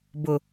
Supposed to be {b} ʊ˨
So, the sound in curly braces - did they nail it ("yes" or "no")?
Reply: yes